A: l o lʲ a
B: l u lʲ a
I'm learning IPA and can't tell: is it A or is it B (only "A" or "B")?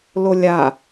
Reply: A